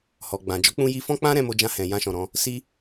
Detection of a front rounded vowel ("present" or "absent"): absent